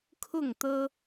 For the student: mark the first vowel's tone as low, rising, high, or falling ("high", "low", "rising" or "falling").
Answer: falling